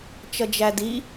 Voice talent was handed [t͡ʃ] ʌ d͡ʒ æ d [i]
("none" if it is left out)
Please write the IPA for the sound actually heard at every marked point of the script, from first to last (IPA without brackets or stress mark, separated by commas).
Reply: t͡ʃ, i